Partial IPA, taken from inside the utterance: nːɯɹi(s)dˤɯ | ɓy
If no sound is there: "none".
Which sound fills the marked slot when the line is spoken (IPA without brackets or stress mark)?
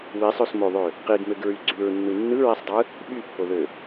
sˤ